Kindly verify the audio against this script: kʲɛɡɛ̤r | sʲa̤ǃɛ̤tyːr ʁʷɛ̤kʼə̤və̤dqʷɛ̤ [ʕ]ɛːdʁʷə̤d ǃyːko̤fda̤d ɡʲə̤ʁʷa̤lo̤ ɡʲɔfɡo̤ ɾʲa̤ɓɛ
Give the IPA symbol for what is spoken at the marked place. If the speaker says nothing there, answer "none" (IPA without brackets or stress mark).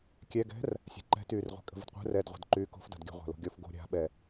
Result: r